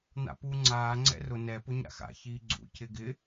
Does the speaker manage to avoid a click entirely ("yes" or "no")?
no